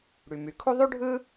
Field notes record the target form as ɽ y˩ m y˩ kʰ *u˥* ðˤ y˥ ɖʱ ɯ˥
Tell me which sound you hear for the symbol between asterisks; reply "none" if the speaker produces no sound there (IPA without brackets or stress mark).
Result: u˥